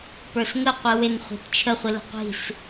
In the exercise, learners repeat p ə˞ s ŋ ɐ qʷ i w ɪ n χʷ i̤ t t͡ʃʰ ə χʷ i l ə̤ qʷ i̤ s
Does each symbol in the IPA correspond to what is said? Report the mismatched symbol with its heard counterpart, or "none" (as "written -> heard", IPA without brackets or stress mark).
ɐ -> ə